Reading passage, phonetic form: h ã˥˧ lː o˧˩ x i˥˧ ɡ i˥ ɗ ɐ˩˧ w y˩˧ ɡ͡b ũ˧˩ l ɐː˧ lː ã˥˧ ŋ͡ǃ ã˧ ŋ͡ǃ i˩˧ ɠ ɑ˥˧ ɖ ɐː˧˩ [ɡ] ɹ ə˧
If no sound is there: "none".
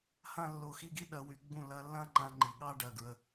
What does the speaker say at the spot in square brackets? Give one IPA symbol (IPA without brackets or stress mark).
ɡ